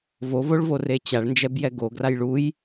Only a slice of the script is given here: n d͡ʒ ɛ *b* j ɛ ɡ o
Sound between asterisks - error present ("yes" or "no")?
no